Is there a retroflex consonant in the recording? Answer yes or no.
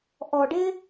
yes